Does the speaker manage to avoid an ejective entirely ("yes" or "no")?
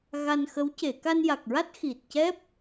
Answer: yes